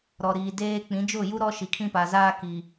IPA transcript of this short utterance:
ɾ ɔ˨ ɾ iː˨ d eː˦ k͡p ĩ˨˦ d͡ʒ ʊ˦˨ j u˦ ɾ ɔ˦ ʃ i˨ kʰ ĩ˦ p a˨ z aː˦ k i˨

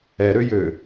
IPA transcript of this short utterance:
ɛ ɾ ø j ø

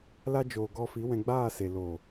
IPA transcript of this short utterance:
l a˧ d͡ʒ oː˨ ɡ ɔ˧ f i˨˦ w ɛ̃˧ ɡ͡b aː˦˨ s e˨ l o˨

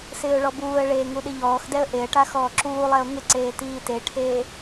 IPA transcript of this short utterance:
s ɪː ʊ̯ ɭ ɔ b uː ə̯ ɭ eː ŋ u ɗ ɪ ʎ ɔː x d ɛ ə̯ ʔ e ə̯ ʈ a x ɔː ǁ uː lˠ ɛ ʊ̯ ŋ ɪ ǀ eː t iː t e ʈʰ eː

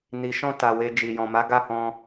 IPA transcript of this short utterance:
n i˨ ʃ ɔ̃˧ t a˨ w e˧ d͡ʒ i˨ j ɔ̃˨ m a˨˦ ɡ a˦˨ h ɔ̃˧

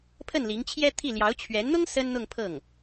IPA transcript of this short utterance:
pʰ ə˥˩ n l i˧˥ ŋ t͡ɕʰ j ɛ˥ t̪ʰ i˥˩ l j ɑ˧˥ ʊ̯ t͡ɕʰ ɥ ɛ˧˥ n n̪ ʊ˥ ŋ s ə˥ n n̪ ʊ˥˧ ŋ pʰ ɤ˥˩ ŋ

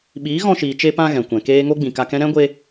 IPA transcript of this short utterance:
ɓ iː˨˦ ɣ ɔ̃˧ ʃ iː˨ t͡ʃ e˧ p ã˧ ɣ ɛ̃˨ kʷ ɛ̃˨ k eː˦ ŋ o˦ ɡ͡b ĩ˨ k a˧ k ɛ̃˦ ɾ ɛ̃˦ ɡʷ e˧

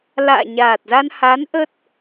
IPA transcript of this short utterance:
l a̰ː˧˨ ɲ aː˨˩ t̚ z a˧ n h a˨˦ n ʔ ə˦˥ t̚

